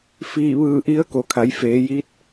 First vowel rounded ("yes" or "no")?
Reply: no